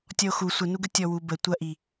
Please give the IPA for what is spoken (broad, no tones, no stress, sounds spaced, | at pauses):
tʲ ɔ o̯ x u sʷ ə n u ɡ ə tʲ ɔ w u b ə tʷ ɐ ʔ i